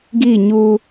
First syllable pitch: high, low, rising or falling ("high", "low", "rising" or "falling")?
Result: falling